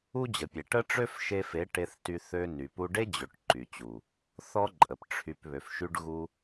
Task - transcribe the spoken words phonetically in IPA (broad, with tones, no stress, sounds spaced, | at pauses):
u˦ d͡ʑ ə˨ pʲ e˨ ʈ ə˦ ʈ͡ʂ ø˦ f ʃ e˧ f e˨˦ ʈ e˧ θ t y˧ θ ø˧ n y˨ p u˧ ɖ e˦ d͡ʑ ø˨ ʈ ǃ y˨ t͡ɕ u˨ | θ ɔ˦ ǃʼ ə˨ p ʈ͡ʂʰ y˨ p β ø˨ f ʃ y˧ ɖ ɣ u˧